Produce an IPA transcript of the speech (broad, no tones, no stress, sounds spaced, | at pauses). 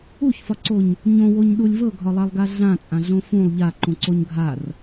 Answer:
u ç f ɒ ǀ o ɲ | ɲ õ w o ɲ ɗ u lʲ v ɤ ɡʱ ɒ lˠ a lˠ ɡ a ɮ ã t͡sʼ ã ɮ õ f ũ lˠ ʎ a ǃ ũ ǀ o ɲ ɡʱ a r